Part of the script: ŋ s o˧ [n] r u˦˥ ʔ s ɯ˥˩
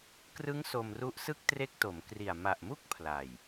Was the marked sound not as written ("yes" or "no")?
yes